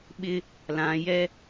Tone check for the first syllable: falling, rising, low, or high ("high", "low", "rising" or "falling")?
high